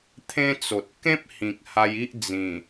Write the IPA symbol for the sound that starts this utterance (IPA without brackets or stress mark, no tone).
t̪ʰ